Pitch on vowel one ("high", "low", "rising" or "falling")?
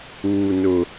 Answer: high